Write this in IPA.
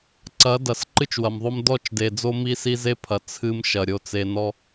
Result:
ǀɐ˨˦ dɐ˨sǃɨ˦t͡ʃwɐ˨mðˤo˦m dɔ˦˨t͡ʃde˨d͡zo˦ mi˦ si˦ze˦pʰɐ˨ t͡sʰɨ˦mʃɐ˨ ɾʲo˨t͡se˨nɔ˦

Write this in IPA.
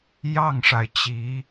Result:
jɑ˥˩ŋʂa˩ɪ̯ t͡ɕi˧˥

